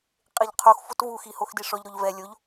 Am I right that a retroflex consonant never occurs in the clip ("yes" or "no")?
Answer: no